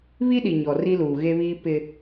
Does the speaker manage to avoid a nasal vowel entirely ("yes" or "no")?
yes